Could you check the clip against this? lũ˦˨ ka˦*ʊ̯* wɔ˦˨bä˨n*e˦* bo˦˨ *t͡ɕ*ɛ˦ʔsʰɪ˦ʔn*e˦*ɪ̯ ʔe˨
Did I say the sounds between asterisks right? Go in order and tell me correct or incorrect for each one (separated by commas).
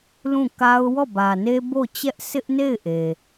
correct, correct, correct, incorrect